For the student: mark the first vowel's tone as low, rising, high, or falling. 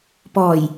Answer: low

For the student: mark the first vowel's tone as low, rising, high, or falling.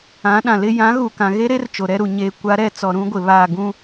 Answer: rising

